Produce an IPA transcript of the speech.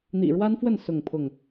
n̪ ḭ˨˩ ɻ w a˦ n f w ə˥˨ n s ʊ˥˨ ŋ pʰ ʊ˥˨ ŋ

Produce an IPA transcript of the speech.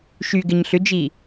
ʃ y ɡ ɪ ɲ ɬ ʏ d͡ʒ i

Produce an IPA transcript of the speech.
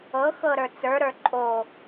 ɤ x ɤ ɾ ə˞ t͡s ə˞ ɾ ə˞ ǃʼ o

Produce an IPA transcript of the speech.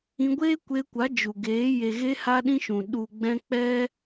ĩ˧ ɡʷ eː˦ kʷ e˧ kʷ a˨˦ d͡ʒ u˨ ɡ eː˨˦ j e˨ ɣ e˧ h a˦ ɗ ĩ˦ ʃ ũ˨ ɗ u˨ ɡ͡b ɛ̃˧ k͡p ɛ˦

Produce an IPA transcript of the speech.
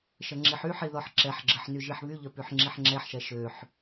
ʃ ə ŋ͡ǁ i ħ y ħ i ð ɔ ħ ǁ ɛ ħ ɡ͡ǁ ə ħ n y ʒ i ħ β y ʎ œ p y ħ ŋ͡ǁ i ħ ŋ͡ǁ ɛ ħ ʃ ɛ ʃ ø ħ

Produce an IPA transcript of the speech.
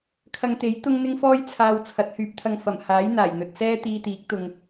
kʰ ɐ˧ ŋ t̪ e˨˥ j t̪ ʊ˥ ŋ n̪ ɪ˥ ŋ f ɔː˥ j t͡sʰ aː˨ w t͡sʰ ɐ˨˥ t̚ h yː˨˥ p̚ t̪ʰ ɐ˧ ŋ f ɐ˨˩ m h aː˨˥ j n̪ aː˨˩ j n̪ ɵ˨ t̚ s ɛː˥ t̪ iː˧ t̪ iː˨˥ k̚ t̪ ʊ˧ ŋ

